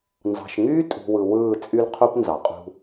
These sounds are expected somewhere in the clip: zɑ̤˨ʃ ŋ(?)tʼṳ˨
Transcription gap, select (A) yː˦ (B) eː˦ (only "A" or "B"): A